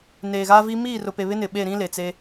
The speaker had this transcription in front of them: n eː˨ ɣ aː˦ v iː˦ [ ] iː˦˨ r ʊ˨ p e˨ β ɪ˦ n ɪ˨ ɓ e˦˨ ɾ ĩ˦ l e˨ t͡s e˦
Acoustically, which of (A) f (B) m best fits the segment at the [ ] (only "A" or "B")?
B